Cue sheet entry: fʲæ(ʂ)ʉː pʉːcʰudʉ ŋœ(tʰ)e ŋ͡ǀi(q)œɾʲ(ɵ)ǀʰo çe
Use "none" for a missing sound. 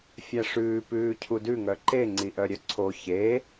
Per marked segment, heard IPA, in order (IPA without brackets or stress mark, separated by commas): ʂ, ǃ, ʔ, œ